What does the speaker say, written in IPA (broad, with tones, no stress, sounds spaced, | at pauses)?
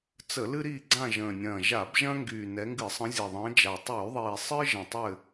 t͡s ə˧˩˧ l ɨ˦ ɾ iː˦˨ ɡ͡ǀ ã˦˨ ʒ ə̃ː˨˩ nʲ ɐ̃ː˨˩ ʒ a˧˩˧ b ʒ ɐ̃˦ ŋ ɡ yː˨˩ n ɛ˨˦ ŋ ɡ ɨ˧˩˧ sˤ ə̃˨˦ zʲ ɐ˨˩ ðˤ ə̃ː˨˦ d͡ʒ a˨˩ tˤ yː˧˩˧ ðˤ iː˨˩ sˤ ɨ˦ ʒ ə̃˨˩ tˤ ɘ˦˨